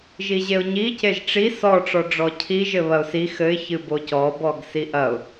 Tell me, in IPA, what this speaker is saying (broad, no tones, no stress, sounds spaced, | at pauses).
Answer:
ʒ i ʑ e ʊ̯ ɲ i c e ʒ ʈ͡ʂ i s ɔ ʈ͡ʂ ɔ ɖ͡ʐ ɔ cʰ i ʒ ɘ β ɐ ʊ̯ s i x ɘ ɪ̯ ç ɨ b o c ɔ b ɔ ɡ s i ʔ ɐ ʊ̯